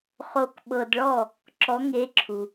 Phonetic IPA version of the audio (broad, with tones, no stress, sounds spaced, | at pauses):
χ o˨ k ɓ ɤ˨ d ɭ ɔ˥˨ | ǁ ɔ˧˥ ŋ e˧˥ ǁʰ u˨